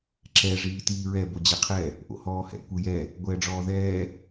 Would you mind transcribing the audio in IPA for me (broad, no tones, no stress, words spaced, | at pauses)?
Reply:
ǁɛ ʐiːtiːɹɛ bod͡ʑɛqʰɛ | ʔo̰hɔːhɛ̰ kʷɯjɛ | ɡʷɛːɖ͡ʐɔːðɛː